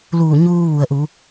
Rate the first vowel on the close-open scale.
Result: close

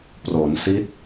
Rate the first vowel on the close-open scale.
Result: mid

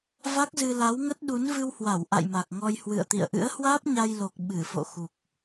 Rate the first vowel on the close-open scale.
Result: open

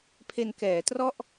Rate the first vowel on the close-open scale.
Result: mid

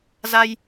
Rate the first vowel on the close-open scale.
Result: open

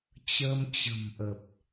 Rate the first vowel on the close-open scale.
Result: mid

